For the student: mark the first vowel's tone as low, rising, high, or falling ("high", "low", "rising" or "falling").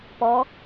rising